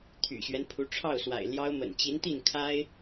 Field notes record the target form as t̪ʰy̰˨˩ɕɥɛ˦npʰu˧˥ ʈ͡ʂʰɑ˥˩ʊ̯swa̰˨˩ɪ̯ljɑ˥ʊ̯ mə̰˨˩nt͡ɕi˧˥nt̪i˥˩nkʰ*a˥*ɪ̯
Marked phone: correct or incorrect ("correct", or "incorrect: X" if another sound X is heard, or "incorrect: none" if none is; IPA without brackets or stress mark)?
correct